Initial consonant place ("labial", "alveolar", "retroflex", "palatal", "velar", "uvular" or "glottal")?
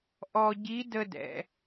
glottal